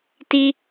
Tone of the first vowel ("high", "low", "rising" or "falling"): high